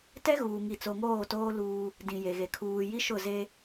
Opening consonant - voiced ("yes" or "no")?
no